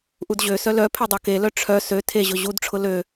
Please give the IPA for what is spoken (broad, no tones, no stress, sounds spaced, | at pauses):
ʔ u d ʑ ø s œ l œ pʰ e dˤ œ k e l œ ʈ͡ʂʰ œ s ø tʰ e ʑ ʊ ʑ u d ʈ͡ʂʰ ʊ l ø